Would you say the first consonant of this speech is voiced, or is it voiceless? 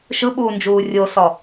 voiceless